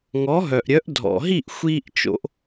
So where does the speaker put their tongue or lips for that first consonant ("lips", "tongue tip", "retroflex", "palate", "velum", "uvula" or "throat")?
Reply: velum